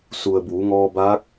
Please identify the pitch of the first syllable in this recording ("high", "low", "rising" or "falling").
low